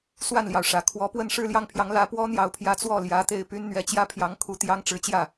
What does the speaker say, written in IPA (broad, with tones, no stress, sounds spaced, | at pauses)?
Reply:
s w a˥˩ n l j ɑ˩ ʊ̯ ʂ ä˨˩ kʰ w ɔ˧˥ p w ə˥˧ n ʂ ɻ̩˥˧ l j ɑ˥˩ ŋ pʰ j ɑ˧˥ ŋ l ä˧˥ p w ɔ˥ n̪ j ɑ˧˥ ʊ̯ pʰ j ä˧˥ t͡s w ɔ˥˩ l j ä˧˥ t̪ e˥˩ ɪ̯ p y˥ n n̪ ɥ ɛ˧˥ t͡ɕ j ä˥ pʰ j ɑ˧˥ ŋ kʰ u˧˥ t̪ j ɑ˥ ŋ ʈ͡ʂ ɻ̩˧˥ t͡ɕ j ä˥˩